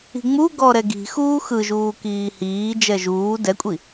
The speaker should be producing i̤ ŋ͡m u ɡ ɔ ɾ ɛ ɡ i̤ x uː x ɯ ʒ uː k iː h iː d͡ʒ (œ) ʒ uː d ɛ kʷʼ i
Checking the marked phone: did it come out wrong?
yes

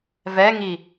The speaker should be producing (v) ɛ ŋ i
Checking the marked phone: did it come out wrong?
no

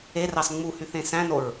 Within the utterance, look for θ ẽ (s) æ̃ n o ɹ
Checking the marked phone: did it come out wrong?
no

